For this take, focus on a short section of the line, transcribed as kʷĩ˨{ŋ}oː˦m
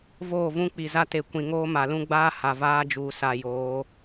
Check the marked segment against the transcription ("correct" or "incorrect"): correct